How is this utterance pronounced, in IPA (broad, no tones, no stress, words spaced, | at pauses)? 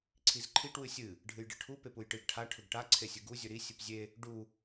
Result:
ǀʰizǃʰiʈ wɨsʲɨ | ɖʱɨjɖɨʈʰu pepujʈɨɡ ʈʰa ʈʰɵɡʈa ǀʰesʲɨɡu zʲɵɾi sʲɨpzʲe | ɖu